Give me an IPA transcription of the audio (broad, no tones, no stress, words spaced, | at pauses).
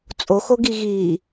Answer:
t͡sʼoxoɡi ɣi